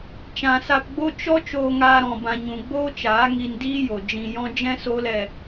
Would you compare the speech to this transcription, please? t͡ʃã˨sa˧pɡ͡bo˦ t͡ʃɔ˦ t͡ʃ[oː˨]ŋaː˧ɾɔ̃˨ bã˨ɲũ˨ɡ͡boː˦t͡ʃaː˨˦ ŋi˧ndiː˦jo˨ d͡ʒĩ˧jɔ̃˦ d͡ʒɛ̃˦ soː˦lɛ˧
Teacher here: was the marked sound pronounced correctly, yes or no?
no